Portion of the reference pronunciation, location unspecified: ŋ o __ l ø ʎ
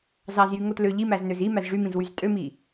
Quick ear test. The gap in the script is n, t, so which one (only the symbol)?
t